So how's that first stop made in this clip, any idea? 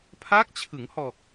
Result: aspirated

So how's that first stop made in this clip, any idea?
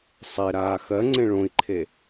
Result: click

